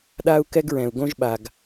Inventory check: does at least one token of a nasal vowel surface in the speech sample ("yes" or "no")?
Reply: yes